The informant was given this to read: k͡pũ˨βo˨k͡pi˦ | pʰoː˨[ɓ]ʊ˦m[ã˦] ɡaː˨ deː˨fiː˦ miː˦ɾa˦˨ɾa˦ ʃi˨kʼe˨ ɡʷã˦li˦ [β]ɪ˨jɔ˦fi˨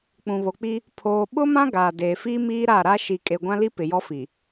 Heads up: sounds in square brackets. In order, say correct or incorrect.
correct, correct, incorrect

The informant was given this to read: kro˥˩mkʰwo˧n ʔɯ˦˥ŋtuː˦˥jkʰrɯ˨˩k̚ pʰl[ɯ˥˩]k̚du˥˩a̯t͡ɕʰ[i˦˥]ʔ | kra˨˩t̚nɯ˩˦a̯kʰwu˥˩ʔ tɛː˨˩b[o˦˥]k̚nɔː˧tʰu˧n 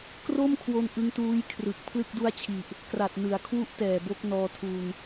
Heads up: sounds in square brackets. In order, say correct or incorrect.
correct, incorrect, correct

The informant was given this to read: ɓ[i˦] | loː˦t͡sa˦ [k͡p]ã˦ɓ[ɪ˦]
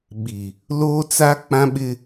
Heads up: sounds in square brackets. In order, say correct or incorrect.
incorrect, correct, correct

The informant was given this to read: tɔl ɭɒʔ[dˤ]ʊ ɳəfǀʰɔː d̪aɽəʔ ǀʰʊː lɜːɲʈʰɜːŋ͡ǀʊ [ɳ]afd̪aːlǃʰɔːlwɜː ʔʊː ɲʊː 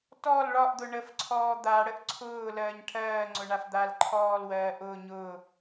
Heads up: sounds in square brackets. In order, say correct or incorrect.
incorrect, correct

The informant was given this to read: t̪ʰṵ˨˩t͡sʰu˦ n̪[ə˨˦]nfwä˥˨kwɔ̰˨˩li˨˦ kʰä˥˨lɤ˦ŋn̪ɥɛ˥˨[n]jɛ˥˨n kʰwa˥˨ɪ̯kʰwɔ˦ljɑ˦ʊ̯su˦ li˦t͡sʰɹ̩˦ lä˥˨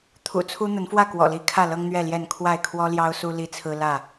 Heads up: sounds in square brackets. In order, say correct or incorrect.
correct, incorrect

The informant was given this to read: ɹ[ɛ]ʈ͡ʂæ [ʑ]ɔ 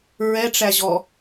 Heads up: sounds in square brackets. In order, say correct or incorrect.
correct, correct

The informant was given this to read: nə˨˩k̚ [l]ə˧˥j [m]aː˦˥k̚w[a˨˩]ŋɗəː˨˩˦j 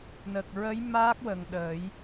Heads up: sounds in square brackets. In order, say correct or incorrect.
incorrect, correct, incorrect

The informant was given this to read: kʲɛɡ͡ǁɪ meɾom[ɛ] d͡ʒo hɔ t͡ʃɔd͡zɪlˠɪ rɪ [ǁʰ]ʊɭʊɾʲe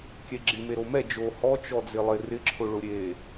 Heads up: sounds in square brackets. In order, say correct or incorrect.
correct, correct

